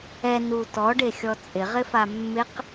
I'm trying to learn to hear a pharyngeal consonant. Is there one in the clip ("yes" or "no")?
no